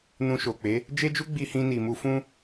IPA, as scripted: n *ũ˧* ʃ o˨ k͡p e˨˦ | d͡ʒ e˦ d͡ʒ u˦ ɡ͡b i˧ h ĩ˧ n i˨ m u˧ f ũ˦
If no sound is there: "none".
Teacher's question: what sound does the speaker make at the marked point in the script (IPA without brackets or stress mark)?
ũ˧